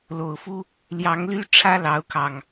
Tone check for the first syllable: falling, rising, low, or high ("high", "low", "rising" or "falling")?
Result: low